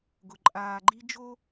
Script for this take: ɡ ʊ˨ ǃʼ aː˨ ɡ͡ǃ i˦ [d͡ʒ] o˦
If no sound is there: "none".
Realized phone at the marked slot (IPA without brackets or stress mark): d͡ʒ